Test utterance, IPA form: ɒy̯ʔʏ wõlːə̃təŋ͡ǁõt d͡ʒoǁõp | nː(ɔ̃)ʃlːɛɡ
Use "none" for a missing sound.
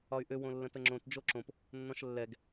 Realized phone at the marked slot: ɔ̃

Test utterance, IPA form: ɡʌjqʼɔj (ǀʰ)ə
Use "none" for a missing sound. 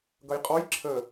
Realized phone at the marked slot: ǁʰ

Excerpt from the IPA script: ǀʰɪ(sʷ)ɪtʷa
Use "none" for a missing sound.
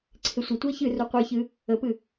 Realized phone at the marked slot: sʷ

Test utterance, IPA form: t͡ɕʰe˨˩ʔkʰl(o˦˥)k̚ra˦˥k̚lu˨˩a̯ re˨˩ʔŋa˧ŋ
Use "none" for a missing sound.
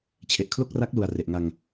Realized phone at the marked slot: o˥˩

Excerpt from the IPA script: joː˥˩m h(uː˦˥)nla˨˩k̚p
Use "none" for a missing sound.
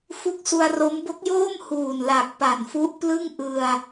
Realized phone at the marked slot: uː˨˩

